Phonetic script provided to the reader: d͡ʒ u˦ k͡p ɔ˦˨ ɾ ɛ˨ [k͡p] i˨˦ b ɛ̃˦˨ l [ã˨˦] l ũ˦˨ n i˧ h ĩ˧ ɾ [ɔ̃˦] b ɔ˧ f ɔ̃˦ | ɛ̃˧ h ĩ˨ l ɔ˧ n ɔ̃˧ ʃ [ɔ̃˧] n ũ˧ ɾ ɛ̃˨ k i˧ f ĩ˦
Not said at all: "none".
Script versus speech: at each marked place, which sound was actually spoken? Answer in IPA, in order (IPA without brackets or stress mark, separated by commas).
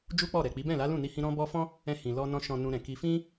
k͡p, a˨˦, ɔ̃˧, ɔ̃˨